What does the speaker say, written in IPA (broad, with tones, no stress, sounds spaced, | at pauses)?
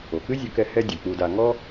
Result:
o˩ k ɨ˥ zʲ o˧ k ɛ˧ h ɛ˧ dʲ ɐ˩ k͡p u˧ d a˧ ŋ ɔ˥